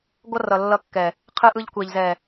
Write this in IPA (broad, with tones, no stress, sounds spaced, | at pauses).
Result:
ɡʷ ʌ˦ r ʌ˨ lː ʌ˦˨ kː ɛ˨ | qʰ ɯ˦ ʔ ɯ˦ ʎ kʷ e˨ ʎ z ɛ˨